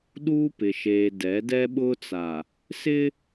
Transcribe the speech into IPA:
ɗ uː˦ p ɪ˨ ʃ eː˨ d ɛ˨˦ d ɛ˦ ɓ ʊ˦ t͡s a˨ | s ɪ˦

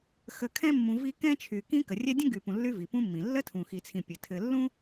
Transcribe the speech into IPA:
x ə˨ kʰ ɛ̃˦ mː ũ˨ v i˦ k ɛ̃˥ t͡ʃʰ y˨ k ĩ˦ k ə˩ rʲ ɛ˦ dʲ ə̃˥ ɡ y˨ p ũ˨ lː y˦ v i˩ p ũ˦ mː ĩ˩ lː ə˥ tʰ ũ˨ x i˨ t͡sʰ ĩ˨ pʲ ɘ˩ tʰ ɘ˨ lː ũ˥

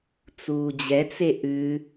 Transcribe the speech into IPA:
t͡s uː d͡ʑ ɛ t͡s e ʔ ʉ

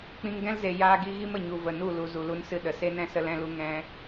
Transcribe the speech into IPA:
k͡p ĩ˧ ŋ ɡ ɛ̃˦ l z e˨ j aː˧ ɡ i˧ ɣ i˦ m ə˨ ɲ u˨ v ə˨ n u˦˨ l u˨ z u˨ l u˧ n s ɨ˧ ɗ ə˨ s e˦ n ɛ̃˦ s ə˧ l ɛ̃˧ l u˧ ŋ ɛ̃˦

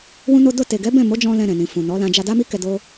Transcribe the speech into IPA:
w ũ˦ n o˦ d o˧ t e˨ ɡ ɛ˨˦ b ɛ̃˦˨ m o˨˦ d͡ʒ ɔ̃˧ l ɛ̃˧ ɾ ɛ̃˨ n ĩ˨ f ũ˨ n ɔ˨˦ l ã˧ d͡ʒ a˧ d a˦ m i˦ k ɛ˧ d o˦

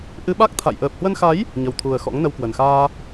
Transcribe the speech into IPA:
ʔ ɨ˧ ɓ a˦˥ k̚ t̪ʰ a̰˧˨ j ʔ əː˨˩ p̚ h w ə˧ n x a˨˦ j | ɲ ə˨˩ w t̪ʰ u˨˩ ə̯ x ɔ̰˧˥ ŋ n ə˧ w k w ə˨˩ n x aː˧

